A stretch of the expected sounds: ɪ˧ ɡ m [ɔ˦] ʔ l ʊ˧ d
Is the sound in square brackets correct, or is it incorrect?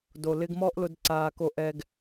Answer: correct